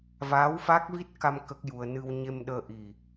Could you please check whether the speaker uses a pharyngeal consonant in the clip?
no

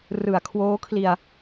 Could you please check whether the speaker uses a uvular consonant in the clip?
no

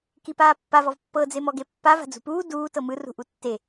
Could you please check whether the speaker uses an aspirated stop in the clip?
no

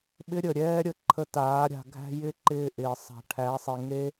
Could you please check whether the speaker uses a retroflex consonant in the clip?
yes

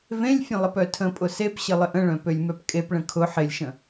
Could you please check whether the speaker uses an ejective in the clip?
yes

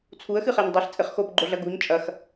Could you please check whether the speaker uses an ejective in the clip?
yes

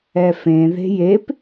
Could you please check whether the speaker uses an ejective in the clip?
no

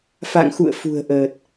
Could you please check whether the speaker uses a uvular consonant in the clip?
no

